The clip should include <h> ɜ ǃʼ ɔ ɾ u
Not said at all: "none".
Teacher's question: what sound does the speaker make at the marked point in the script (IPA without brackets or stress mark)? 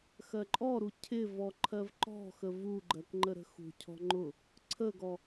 x